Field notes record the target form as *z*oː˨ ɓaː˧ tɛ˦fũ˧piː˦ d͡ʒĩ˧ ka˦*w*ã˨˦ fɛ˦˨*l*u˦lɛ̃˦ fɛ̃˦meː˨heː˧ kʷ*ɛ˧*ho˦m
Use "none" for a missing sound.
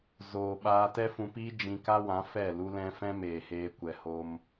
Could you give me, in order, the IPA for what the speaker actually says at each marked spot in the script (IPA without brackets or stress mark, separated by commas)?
z, w, l, ɛ˧